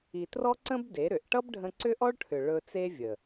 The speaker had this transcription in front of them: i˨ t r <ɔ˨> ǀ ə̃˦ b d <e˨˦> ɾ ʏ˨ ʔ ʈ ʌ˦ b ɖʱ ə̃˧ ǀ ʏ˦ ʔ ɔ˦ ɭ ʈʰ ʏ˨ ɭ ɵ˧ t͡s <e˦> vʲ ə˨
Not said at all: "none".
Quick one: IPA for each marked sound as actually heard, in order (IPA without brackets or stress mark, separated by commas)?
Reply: ɔ˦, e˨˦, e˦